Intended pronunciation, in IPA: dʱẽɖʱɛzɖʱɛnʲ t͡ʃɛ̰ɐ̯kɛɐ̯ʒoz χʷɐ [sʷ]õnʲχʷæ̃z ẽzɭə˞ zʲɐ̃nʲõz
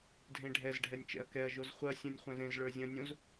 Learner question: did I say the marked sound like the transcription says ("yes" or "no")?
no